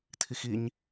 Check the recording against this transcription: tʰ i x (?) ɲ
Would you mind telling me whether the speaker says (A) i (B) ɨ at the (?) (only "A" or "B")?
A